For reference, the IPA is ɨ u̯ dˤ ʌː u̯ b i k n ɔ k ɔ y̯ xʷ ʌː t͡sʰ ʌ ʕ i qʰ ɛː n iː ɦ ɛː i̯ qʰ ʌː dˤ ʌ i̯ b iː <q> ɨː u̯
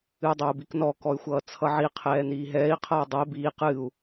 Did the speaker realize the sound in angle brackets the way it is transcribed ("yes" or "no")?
yes